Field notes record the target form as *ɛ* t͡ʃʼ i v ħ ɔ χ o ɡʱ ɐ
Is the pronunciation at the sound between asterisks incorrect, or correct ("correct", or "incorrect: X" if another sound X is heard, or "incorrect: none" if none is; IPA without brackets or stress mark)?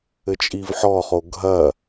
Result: incorrect: ɘ